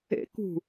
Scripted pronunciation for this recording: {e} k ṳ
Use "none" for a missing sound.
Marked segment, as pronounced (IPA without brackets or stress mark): ḛ